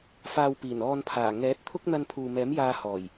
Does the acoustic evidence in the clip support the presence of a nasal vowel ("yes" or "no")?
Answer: no